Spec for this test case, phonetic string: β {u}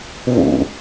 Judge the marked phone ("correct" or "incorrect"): incorrect